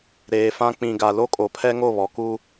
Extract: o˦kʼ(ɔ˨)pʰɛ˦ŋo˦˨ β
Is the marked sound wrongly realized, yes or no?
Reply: yes